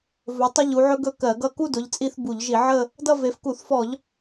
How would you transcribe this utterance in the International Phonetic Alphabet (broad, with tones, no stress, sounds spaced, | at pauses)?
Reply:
v ɵ˨˦ tˤ ʊ˥ ʎ u˨˦ ʕ ɵ˥ ɡ ɵ˥˧ k ɜ˧˩˧ ɡ ʌ˥˧ k u˥˧ d ʊ˨˦ ʎ t͡sʼ i˥˧ θ b u˧˩˧ ʎ ʒ i˧˩˧ ʕ ə˥˧ | d ʌ˥˧ v e˨˦ f k u˧˩˧ θ f ɔ˧˩˧ ʎ